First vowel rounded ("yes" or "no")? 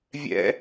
no